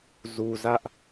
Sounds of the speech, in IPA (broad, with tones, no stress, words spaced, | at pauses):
zu˨zä˦ʔ